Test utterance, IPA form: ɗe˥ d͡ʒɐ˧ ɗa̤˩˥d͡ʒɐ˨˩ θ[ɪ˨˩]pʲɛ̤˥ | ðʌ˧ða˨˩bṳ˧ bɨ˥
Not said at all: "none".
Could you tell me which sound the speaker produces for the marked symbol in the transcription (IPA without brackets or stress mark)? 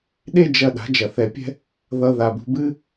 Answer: ɛ˨˩